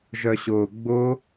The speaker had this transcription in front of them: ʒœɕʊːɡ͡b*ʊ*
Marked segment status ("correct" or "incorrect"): correct